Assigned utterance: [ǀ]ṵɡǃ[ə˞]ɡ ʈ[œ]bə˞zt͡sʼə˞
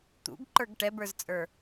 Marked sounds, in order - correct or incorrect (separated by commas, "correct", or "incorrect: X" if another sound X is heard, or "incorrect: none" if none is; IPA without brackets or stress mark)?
incorrect: t̪, correct, incorrect: ɛ